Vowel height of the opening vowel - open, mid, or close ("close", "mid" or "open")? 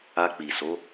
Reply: open